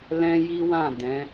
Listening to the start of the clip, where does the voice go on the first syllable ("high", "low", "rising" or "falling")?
high